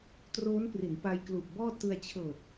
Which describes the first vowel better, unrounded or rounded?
rounded